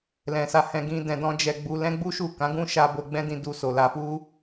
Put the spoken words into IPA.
l ɛ̃˨ s a˨˦ h ɛ̃˧ ɡ ĩ˧ d ɛ̃˧ d ɔ̃˦ d͡ʒ ɛ˧ ɡ͡b u˧ l ɛ̃˦ ɡ͡b u˦ ʃ u˦˨ k ã˨˦ ɡ ũ˦ ʃ a˧ b o˧ ɡ͡b ɛ̃˦ d ĩ˧ d u˧ s o˨ l a˧ f u˦

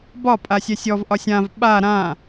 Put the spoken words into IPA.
b ɒ pʼ a sʲ ɛ sʲ ɔ v ʔ ɒ sʲ ã v ɓ a ɾ ã

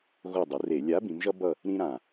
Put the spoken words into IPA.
ɣ o˦˨ dˤ ɯ˩˧ r e˧˩˧ lʲ a˨˥ b ĩ˩˧ m ʒ ʌ˦ b ʌ˦˨ | ɾ ĩ˦ ɾ ã˨˩

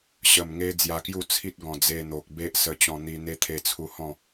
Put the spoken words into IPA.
ɕ ə˨˩ m ŋ e˧ d͡z j a˧ k j u˥˧ t͡sʰ i˦ t̚ ɡ ɔ̃˨˩ d͡z e˧ n̪ o˨ k̚ b e˦ ʔ s ə˧ t͡ɕ ɔ̃˧ n̪ i˧ n̪ e˦ t̪ʰ e˧ t͡sʰ u˧ h ɔ̃˥˧

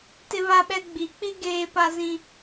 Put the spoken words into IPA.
t ɪ˦ β a˦ ɓ ɛ˦ ɡ͡b i˨˦ k͡p i˦ ɡ eː˦ p a˦ z ĩ˦

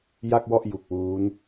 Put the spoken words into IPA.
j a˥˩ k̚ w ɔ˥˩ ʔ j u˨˩ k̚ w uː˦˥ n

